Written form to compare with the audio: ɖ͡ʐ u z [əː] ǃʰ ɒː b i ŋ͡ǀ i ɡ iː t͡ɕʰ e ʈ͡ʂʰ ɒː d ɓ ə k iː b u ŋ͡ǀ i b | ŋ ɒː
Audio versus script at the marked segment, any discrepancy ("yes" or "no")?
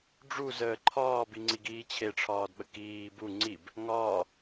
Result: no